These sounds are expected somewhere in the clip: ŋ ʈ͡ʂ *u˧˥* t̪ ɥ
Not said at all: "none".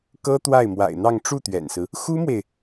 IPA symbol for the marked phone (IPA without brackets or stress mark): u˥˩